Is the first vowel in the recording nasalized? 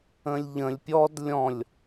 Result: yes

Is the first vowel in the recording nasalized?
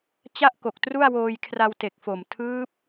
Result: no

